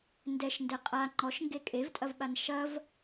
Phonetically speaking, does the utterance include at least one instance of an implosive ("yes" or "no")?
yes